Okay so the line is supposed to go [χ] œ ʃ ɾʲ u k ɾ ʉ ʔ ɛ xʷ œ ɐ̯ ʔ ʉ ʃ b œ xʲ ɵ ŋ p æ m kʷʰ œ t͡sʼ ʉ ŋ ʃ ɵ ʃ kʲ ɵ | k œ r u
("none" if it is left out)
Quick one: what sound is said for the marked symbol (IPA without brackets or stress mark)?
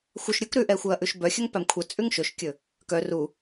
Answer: xʷ